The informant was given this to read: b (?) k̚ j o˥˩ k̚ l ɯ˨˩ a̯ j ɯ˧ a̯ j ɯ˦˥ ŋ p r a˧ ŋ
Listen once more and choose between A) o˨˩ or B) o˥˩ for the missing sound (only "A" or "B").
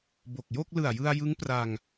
A